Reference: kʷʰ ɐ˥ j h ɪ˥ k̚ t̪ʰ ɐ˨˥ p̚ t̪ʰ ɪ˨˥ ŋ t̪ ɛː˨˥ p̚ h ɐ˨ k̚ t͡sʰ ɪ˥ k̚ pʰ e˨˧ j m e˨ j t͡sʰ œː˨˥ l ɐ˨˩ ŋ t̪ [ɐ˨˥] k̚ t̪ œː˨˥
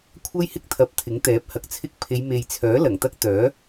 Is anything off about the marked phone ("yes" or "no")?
yes